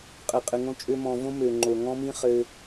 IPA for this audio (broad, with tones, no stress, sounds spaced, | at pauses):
qʼ ɘ˨ qʼ ɘ˨ ŋ õ˧ t͡ʃʼ ø˧ m ɔ̃˨ v õ˦ m ø˨ ŋ͡ǃ o˨ ŋ ɔ̃˦ m ĩ˦ χ ɘ˧